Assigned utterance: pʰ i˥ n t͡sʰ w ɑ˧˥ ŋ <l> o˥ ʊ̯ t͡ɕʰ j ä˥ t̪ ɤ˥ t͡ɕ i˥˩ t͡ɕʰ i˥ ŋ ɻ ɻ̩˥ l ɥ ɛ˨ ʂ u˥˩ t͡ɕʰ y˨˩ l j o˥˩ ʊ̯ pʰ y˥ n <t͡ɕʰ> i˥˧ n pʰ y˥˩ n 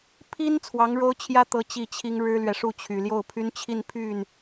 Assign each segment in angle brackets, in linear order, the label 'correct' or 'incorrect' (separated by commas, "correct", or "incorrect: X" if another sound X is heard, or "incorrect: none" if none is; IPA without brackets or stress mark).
incorrect: ɻ, correct